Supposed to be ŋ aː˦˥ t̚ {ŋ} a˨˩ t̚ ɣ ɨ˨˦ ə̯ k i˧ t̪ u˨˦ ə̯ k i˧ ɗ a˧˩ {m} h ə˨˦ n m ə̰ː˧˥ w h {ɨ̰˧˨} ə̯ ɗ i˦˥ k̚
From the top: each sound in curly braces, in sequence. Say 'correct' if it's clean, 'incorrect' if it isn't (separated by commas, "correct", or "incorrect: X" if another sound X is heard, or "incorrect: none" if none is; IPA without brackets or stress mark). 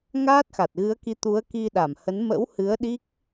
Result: incorrect: x, correct, incorrect: ɨ˨˦